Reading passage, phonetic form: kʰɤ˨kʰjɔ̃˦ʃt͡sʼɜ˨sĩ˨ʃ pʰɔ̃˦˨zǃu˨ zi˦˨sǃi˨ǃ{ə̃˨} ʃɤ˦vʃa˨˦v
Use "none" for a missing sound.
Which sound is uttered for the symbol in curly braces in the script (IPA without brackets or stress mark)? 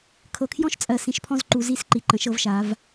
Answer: ə̃˨